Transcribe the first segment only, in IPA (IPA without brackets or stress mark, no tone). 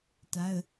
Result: t